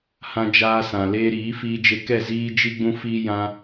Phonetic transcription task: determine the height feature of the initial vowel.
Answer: low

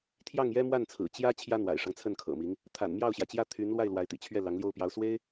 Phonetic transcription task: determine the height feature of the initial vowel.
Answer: low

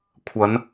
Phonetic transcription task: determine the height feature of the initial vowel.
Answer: low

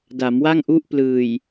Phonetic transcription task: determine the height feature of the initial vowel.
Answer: low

